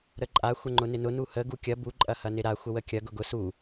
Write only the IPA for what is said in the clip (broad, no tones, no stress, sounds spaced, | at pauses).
ɾ ə ǃʼ a xʷ ə ŋ͡ǃ ʊ n ɪ n ʊ n u h ə ɡ u kʲ ɐ b u ǃʼ ɐ h ɐ n ɪ ɾ a xʷ ə w ə kʲ ɐ ɡ ʊ ɡ ʊ s u